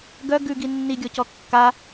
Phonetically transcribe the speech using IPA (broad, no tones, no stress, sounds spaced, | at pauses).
ɡ œ ɡ ʉ ɡ i nː i ɡʲ ɔ c ɔ kː a